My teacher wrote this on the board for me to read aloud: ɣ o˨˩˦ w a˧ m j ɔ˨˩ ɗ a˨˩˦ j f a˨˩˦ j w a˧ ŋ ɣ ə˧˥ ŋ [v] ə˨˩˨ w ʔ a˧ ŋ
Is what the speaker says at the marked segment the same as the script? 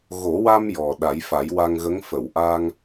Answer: no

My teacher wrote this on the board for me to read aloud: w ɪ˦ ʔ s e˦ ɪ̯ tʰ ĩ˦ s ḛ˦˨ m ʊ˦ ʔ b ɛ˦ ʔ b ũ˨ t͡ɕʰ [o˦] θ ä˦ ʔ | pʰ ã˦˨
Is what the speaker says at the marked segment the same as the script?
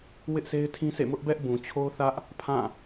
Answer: yes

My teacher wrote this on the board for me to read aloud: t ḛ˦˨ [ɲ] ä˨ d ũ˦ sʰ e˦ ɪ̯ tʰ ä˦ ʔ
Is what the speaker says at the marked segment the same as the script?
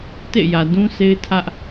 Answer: no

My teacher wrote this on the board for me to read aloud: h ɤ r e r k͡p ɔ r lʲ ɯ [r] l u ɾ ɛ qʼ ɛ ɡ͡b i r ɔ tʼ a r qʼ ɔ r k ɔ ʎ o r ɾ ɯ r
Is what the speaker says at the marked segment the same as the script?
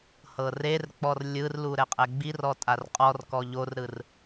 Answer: yes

